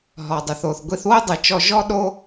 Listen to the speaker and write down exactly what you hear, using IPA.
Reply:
ɦ ɔ˩ dˤ ɘ˩ θ o˩ θ ɡʷ i˧ θ w o˥ dˤ ɨ˩ t͡ʃ ɔ˧ ʒ ɔ˥ ɗ o˥

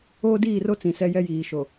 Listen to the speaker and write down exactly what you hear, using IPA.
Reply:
oː˦ d iː˦˨ r o˦ t͡s ĩ˨ s ɛ˦ j ɛ˦ j iː˨ ʃ o˨

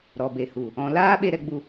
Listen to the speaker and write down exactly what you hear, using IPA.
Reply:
ɾ ɔ˨ b e˨ h u˨ | ɔ̃˧ l aː˦ ɓ e˧ ɾ ɛ˧ ɡ͡b u˧

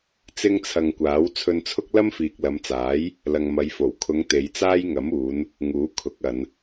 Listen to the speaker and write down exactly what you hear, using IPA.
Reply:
t͡s ɪ˥ ŋ t͡sʰ ɐ˧ ŋ kʷ aː˨˥ w t͡sʰ ɵ˧ n t͡sʰ ʊ˥ k̚ l ɐ˥ m f iː˨ k̚ l ɐ˨˧ m t͡s aː˨˥ j | l ɐ˨ ŋ m ɐ˨˧ j f o˨˩ w kʰ ʊ˨˧ ŋ t̪ e˨˧ j t͡s aː˥ j ŋ ɐ˨˥ m uː˨˧ n | ŋ uː˨˥ kʰ ʊ˨˥ k̚ ɐ˨˧ n

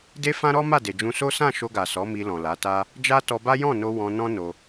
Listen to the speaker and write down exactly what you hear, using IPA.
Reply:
d e˦ f ã˦ ɾ ɔ˦ m a˦˨ d e˨ d͡ʒ ũ˧ s o˦ s ã˦˨ ʃ o˧ ɡ a˨ s ɔ˨˦ m i˧ l ɔ̃˨ l a˨˦ t a˦ | d͡ʒ a˦ t ɔ˧ b a˦ j ɔ̃˦˨ n o˧ w ɔ̃˧ n ɔ̃˦ n o˧

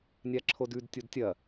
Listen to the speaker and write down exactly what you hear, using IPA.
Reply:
nʲ a ǁʰ o d ʉ d tʲ o d tʲ ɐ

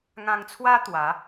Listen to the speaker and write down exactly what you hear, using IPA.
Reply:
ŋ ã˧ ŋ t͡sʰ w a˦ t̪ w a˨˦

